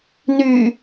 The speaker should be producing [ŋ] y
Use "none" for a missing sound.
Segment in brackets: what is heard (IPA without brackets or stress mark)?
n